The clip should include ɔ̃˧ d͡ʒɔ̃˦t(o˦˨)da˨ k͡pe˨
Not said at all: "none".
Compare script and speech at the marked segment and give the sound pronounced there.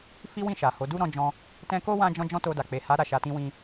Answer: o˧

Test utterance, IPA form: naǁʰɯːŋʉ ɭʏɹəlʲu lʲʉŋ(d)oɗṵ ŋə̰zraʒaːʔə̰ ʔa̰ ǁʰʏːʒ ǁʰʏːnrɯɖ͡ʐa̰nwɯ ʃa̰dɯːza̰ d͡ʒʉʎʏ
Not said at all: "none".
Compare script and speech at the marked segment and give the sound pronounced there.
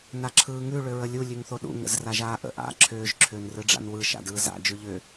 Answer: θ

